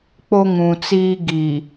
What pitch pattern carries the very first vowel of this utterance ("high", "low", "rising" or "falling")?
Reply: high